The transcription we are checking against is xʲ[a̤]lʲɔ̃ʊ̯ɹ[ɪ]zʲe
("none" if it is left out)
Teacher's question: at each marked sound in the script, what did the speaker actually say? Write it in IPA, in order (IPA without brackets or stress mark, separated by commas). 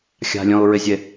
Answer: a̤, ɪ